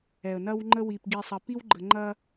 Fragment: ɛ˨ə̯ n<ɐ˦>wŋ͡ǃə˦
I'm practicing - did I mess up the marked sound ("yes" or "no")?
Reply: no